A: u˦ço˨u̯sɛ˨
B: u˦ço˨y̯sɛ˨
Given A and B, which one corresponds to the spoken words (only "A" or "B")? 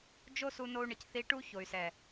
B